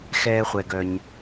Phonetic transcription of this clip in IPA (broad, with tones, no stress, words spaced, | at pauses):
xɛː˧χʷɛ˩ɡœ˩ɲ